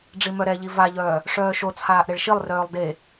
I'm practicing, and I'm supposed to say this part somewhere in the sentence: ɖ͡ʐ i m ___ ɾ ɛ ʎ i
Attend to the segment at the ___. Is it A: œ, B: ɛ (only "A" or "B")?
A